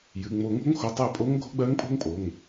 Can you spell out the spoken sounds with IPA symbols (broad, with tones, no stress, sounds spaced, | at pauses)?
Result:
j ɨ˩˧˩ ŋ͡m o˨˩˦ ŋ o̤˧˥ ŋ x o˩˧˩ tˤ æ˥˩ pʼ o˧˥ ŋ ɡʱ o̤˧˥ ɡ͡b ɜ˧˥ ŋ pʼ o̤˥ ŋ pʼ o˩˧˩ ŋ